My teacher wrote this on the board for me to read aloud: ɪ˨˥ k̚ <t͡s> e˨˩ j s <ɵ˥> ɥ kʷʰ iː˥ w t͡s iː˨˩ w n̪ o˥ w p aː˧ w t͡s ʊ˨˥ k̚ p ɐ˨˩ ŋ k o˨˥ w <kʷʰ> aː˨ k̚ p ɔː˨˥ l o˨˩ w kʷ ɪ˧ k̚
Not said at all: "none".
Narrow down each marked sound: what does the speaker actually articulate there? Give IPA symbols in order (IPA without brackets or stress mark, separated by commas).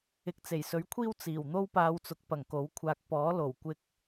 t͡s, ɵ˨˥, kʷʰ